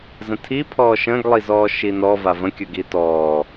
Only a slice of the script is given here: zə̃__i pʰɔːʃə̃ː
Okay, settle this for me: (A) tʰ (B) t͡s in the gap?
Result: A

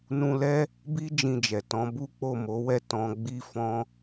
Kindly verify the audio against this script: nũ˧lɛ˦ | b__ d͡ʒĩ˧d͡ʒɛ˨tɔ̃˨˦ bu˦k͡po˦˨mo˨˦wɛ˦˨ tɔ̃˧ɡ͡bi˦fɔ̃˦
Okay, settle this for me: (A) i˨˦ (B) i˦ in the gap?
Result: B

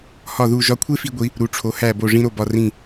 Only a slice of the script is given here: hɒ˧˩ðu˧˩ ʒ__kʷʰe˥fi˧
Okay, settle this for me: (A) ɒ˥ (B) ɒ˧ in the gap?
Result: B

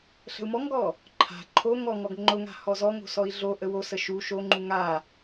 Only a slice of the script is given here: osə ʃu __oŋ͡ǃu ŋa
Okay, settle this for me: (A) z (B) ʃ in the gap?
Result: B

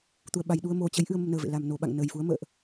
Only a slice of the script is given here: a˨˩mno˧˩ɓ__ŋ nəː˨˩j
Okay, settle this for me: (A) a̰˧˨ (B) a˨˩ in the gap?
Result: A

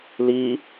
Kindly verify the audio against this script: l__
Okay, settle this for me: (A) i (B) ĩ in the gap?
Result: A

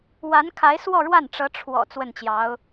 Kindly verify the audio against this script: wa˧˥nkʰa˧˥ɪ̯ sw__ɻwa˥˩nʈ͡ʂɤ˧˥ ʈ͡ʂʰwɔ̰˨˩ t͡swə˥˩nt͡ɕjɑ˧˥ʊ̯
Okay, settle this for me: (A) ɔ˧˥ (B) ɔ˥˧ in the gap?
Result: B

